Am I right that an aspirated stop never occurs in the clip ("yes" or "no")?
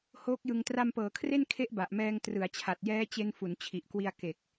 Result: no